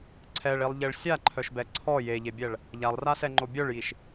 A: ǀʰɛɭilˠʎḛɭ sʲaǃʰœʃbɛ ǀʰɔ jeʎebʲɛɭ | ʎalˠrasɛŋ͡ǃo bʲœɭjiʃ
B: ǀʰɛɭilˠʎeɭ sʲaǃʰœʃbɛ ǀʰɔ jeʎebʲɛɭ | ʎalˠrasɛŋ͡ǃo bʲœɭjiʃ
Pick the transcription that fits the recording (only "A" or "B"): B